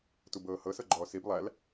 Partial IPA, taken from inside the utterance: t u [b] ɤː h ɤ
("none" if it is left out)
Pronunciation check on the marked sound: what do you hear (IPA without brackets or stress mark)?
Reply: b